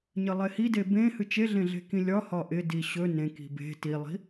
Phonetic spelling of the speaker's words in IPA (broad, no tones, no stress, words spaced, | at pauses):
ɲəlˠehide bẽ hɨt͡ʃeɮẽɮe̤ kĩlʲɒ hɒʔɪdi ɕɵ nẽ ki̤be̤ tilˠi̤